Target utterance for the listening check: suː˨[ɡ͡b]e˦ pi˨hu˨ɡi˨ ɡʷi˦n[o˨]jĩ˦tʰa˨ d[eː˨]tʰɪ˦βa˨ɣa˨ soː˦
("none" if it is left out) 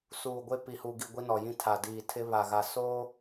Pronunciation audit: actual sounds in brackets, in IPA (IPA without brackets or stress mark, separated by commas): ɡʷ, ɔ˨, iː˨